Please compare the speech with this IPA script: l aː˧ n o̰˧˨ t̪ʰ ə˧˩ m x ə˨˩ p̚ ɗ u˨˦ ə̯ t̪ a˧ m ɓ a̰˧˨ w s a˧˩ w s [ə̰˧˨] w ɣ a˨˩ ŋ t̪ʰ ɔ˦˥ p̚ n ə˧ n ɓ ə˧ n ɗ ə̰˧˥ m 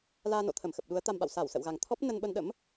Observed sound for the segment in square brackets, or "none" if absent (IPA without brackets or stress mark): ə̰˧˨